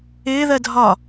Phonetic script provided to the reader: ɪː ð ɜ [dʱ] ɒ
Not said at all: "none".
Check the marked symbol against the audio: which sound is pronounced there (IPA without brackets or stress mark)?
dʱ